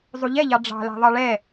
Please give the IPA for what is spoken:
zˤuʎɛʎɑ ɖ͡ʐɑ̤læ̤ ðˤɑɭɛ

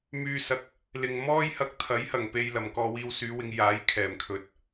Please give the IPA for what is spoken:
myː˧sɐ˨˥k̚ | lɪ˨ŋ mɔː˥jhɐ˧k̚t̪ʰɐ˨˥j hɐ˨˩ŋpe˧j lɐ˨˩mkɔː˧wiː˧w syː˨˧wɪ˨˧ŋ jaː˨˥j kʰɛː˨˩mkʰɵ˨t̚

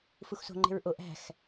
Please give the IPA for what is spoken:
fuxso̤ ŋ͡ǃe̤ɹʔo ʔæ̤x

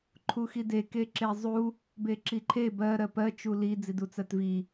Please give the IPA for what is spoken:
ǃʰuxide keǁezˤu | beǁiǃʰe bɜ ɾɜpɜ t͡ʃuli d͡zidut͡sɜtvi

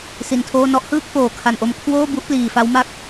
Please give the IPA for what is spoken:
si˧ntʰoː˥˩ nɔ˦˥ʔhɯː˥˩k̚ foː˨˩kʰa˨˩n ʔo˧m kʰwoː˥˩bu˦˥ʔ pliː˨˩fa˦˥wma˥˩k̚

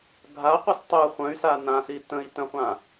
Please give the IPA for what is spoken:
ɡʱaqʷɯs tˤɯ χʷə̃y̯sa nãsi tə̃i̯ tə̃χʷã

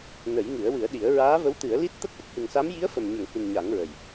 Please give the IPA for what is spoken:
nə˨˩˦jŋɨ˨˩˦ə̯wɨ˨˩˦ə̯ɗi˨˩˦ə̯ ɹaː˧˥və˧˥wt̪ɨ˨˩˦ə̯li˦˥t̚ t̪ə˦˥k̚ʔə˦˥k̚hɨ˨˩ŋsa˧˥m ji˧˥ə̯fə˨˩mɲə˨˩˨ŋhi˨˩n ɲa˨˩˦ŋɹə˨˩j

